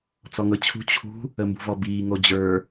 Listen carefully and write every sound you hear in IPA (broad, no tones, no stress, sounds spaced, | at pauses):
t͡s ɔ ŋ ɤ t͡ɕʰ ṳ t͡ɕʰ ṳ | ə m b ṳ v ɔ b iː ŋ o d͡ʑ ə˞